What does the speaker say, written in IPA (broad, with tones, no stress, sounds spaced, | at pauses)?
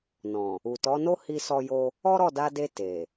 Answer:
n ɔ̃˨ | u˨ t ɔ˨˦ n o˦ h i˦ s ɔ˦ j o˦ | ɔ˦ ɾ ɔ˦˨ d a˧ d e˧ t e˨